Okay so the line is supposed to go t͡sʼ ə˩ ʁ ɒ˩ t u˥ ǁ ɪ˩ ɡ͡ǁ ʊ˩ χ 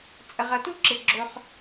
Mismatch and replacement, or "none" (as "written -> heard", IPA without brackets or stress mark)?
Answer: ɒ˩ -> ʌ˩